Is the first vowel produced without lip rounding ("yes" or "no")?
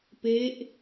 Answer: yes